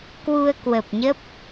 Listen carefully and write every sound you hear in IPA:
k w u˧ ə̯ k w ə˨˩ p̚ ɲ ə˦˥ p̚

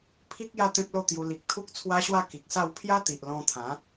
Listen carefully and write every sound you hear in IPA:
pʰ i˦ k̚ j a˥˧ t̪ ẽ˦ p̚ l o˥˧ t̪ j u˧ l i˨ k̚ t̪ʰ u˦ k̚ t͡sʰ w a˦ ɕ w a˥˧ k i˨ k̚ s a˥˧ w pʰ j a˦ t̪ i˨ ʔ l ɔ̃˧ t̪ʰ ã˨˦

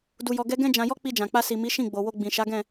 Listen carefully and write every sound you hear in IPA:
d u˧ j ɔ˧ ɡ ɛ˦ ɡ ɛ̃˦ d͡ʒ ã˧ j ɔ˦ k͡p i˧ d͡ʒ ã˨ k͡p a˧ s i˨ m i˨˦ ʃ ĩ˦˨ ɡ͡b o˨ w o˧ ɡ͡b ĩ˨ ʃ a˨˦ ɡ ɛ̃˦˨

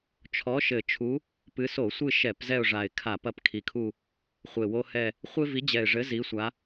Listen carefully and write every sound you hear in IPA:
t͡ʃʰ ɔ˨˦ ʃ ɘ˨˩ t͡ʃʰ u˨˦ | p ɨ˨˦ s o˧˩˧ sʷ ɨ˦˨ ʃ ɛ˧˩˧ p z ɛ˦˨ ʊ̯ ʐ a˨˩ ɪ̯ kʰ a˧˩˧ p ɐ˨˦ p kʰ i˨˩ kʰ u˦˨ | χʷ e˨˩ w o˦ h ɛ˦˨ | χʷ e˦ v i˨˦ d͡ʑ ɛ˨˩ ɪ̯ ʐ ɘ˨˦ z i˨˦ sʷ a˨˦

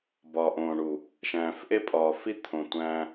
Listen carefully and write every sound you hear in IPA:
b ɒ˨ ʔ õː˨ ɳ u˨ | ʃ æ̃ː˨ f ʔ e˦ pʼ ɒː˨ f i˦ t̪ʰ õ˨ tʷ æ̃ː˦

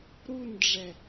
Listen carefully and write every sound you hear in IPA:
ɾ u n ɖ͡ʐ ɛ

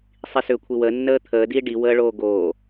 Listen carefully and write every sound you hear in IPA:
sˤ i s ʏː kʷʰ i w əː nː əː t̪ʰ əː d iː ɖ i w əː ɭ oː ɡ oː

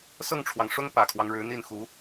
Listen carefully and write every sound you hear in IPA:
s ɤ˥˩ ŋ ʈ͡ʂʰ w ɑ˩ ŋ ʂ ʊ˥ ŋ p ä˨˩ kʰ w ɑ˦ ŋ ɻ ɻ̩˧˥ n̪ i˥˩ n x u˧˥

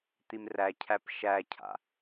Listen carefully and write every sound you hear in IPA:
t̪ i m r æ cʰ æ p ʃ æ cʰ a̰

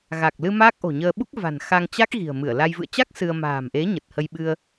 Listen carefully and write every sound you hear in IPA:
ɣ a˨˩ k̚ l ɨ˧ m aː˦˥ k̚ ʔ o̤˨˩ ɲ əː˧ ɓ u˦˥ k̚ v a̤˨˩ n x a˧ ŋ t͡ɕ a˦˥ k̚ ɣ i̤˨˩ ə̯ m ɨ˧˩ ə̯ l a˧ j v ɨ̰˧˨ ə̯ t͡ɕ a˦˥ k̚ s ɨ˧ ə̯ m a̤ː˨˩ m ʔ e˨˦ ɲ ə˨˩ t̚ h ə˧ j ɓ ɨ˧ ə̯

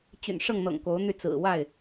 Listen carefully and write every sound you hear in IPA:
t͡ɕ y̰˨˩ n ʂ ɤ˥˨ ŋ n̪ ɤ̰˨˩ ŋ k o˨˦ ʊ̯ n̪ y˧ t͡s ɹ̩˨˩ w a˥˨ ɪ̯

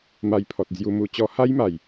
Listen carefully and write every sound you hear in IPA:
m a˧ j pʰ ɔ˨ t̚ d͡z j u˧ m u˧ t͡ɕ ɔ˧ h a˦ j m a˨˩ j

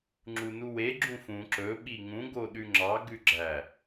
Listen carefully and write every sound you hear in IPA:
ŋ͡ǁ u n u w e ɡ͡ǁ ũ f ũ ǁ ɵ ɓ i ŋ ũ ɡ o ɗ ʉ ŋ͡ǁ ɑ ɡ ʉ ɡ͡ǁ æ

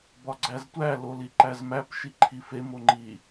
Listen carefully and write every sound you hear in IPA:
b ɒ ɡ͡ǀ æ z tʷ æ l o l i ǃ æ z m æ p ʃ i ǃʰ i f e m o ŋ͡ǃ i

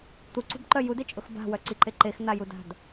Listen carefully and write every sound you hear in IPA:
t̪ u ǀ ṳ b ǃ œ j u d e t͡ʃʼ ʊ x b a̤ w œ ǀ i ǃ e ǃ e x n̪ a j u d a̤ d

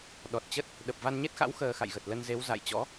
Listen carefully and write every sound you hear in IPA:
ɗ ɔ˨˩ t̚ t͡ɕ ə˦˥ t̚ | ɗ ə˨˩ p̚ v a˧ n ɲ e˦˥ t̚ x a̰˧˥ w x əː˧ x a̰˧˨ j ɣ ə˨˩ t̚ l ə˧ n z e˨˦ w z a̰˧˨ j t͡ɕ ɔ̰˧˥

